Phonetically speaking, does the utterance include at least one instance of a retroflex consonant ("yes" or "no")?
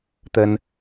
no